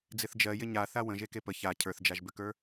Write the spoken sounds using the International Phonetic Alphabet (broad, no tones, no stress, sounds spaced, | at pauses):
d͡z ɪ θ d͡ʒ ɜ j ɪ ɲ a θ a w ə̃ ʒ e k e p ə ç a cʰ ə˞ θ d͡ʒ a ʒ b ʏ k ə˞